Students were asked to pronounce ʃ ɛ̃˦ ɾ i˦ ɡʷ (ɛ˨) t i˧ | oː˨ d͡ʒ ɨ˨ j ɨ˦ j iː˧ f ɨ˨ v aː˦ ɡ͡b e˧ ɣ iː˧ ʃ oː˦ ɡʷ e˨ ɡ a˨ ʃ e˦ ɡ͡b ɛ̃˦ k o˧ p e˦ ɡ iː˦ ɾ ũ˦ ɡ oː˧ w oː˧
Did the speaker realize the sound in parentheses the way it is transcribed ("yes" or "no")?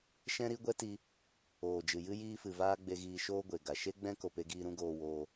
no